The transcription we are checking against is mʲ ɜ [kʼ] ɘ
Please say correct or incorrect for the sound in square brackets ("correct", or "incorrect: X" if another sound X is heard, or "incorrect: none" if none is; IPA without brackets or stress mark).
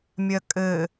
correct